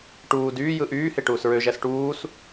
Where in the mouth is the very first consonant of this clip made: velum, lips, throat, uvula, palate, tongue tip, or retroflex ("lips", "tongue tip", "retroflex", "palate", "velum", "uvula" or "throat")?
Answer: retroflex